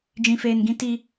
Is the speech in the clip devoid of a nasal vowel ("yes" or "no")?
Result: no